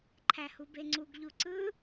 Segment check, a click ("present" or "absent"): present